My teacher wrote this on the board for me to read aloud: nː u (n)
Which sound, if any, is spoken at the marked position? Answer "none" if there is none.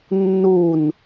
n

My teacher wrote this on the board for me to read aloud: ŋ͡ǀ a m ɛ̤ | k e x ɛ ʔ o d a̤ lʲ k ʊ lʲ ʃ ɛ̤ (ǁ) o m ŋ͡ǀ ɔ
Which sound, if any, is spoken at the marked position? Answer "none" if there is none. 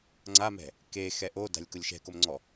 k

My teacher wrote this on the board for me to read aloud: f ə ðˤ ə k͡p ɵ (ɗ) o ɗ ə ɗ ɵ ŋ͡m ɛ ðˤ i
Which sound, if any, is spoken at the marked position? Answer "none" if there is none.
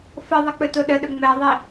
t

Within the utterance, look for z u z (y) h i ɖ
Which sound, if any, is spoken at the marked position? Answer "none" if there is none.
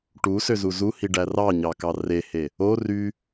u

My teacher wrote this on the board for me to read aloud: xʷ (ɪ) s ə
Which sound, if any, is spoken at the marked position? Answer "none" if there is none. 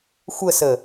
ə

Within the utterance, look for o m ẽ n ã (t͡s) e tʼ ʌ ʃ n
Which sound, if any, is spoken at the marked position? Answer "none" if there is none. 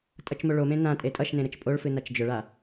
tʼ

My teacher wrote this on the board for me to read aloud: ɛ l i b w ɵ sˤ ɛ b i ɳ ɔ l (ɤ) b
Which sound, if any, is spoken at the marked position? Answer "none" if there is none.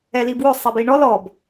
ɔ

